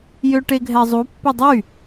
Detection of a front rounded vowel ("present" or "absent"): present